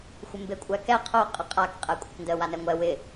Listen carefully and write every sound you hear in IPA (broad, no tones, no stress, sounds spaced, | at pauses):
xʷ ɪ m b e kʷʼ æ k ɛ qʰ o qʼ ɐ qʼ a k qʼ ɛ kʷʼ ɪ k n d ə w a n ɛ ŋʷ ɛ w ɪ